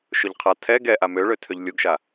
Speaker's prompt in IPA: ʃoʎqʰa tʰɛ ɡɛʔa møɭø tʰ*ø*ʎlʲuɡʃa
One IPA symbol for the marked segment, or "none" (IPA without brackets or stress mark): ø